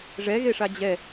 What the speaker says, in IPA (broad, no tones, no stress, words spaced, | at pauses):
ʐɛɣeʂa d͡ʑɛ